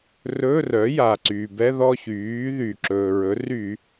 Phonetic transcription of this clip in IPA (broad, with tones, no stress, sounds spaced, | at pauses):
r ɵ˧˥˧ r œ˩˥ j a˩ ǀ yː˩ b ɛ˧˥˧ ð ɔ˥˧ ç yː˩˥ ð y˩ ǁ ɵː˩ ɹ ɵ˩˥ r y˧˩˧